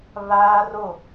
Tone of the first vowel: high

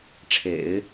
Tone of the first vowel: low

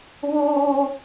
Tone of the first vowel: high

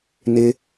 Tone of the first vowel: low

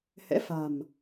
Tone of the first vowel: rising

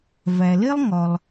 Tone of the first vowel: low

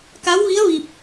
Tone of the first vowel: rising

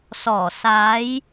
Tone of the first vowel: low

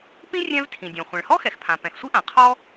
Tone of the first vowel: high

